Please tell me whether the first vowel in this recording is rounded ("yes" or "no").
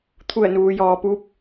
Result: yes